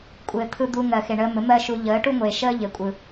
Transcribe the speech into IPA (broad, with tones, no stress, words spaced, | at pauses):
kʷʼɘː˨t̪ʰɯ˧ d̪u˧ŋɜ˨ xe˨ɳəː˧mɘ˨˦ mɜ˦ʃu˧ ʎəː˨˦ʈu˦ŋʷeː˨ʃəː˦ ʎɘ˨ kʷʼɯ˨